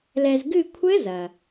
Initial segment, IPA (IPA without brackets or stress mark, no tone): l